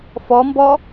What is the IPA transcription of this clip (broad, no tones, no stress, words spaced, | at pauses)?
fɔmbɔ